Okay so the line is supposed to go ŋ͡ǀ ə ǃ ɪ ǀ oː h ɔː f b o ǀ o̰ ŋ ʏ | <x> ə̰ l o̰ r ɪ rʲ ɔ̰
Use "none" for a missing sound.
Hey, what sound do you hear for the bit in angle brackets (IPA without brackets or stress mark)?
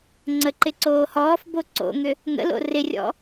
ŋ